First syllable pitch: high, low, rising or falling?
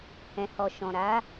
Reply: low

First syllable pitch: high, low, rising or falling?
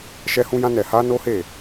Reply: high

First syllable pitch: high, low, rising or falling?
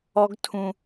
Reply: high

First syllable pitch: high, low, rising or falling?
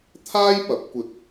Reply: high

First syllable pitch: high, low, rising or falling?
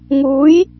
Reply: rising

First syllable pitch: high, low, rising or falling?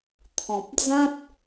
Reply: low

